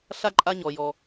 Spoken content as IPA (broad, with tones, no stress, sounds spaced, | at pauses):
ɬ a˥ ǃʼ a˦ ɲ ɔ˩ j ɔ˩